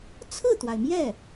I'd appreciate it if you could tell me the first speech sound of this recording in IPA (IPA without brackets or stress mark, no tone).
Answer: t͡sʰ